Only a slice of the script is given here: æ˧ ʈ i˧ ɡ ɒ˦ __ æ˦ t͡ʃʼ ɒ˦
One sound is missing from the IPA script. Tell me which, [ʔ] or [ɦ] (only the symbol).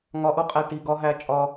ɦ